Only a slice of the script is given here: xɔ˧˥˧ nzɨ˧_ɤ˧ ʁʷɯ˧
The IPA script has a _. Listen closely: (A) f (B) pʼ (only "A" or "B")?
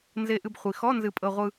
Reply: B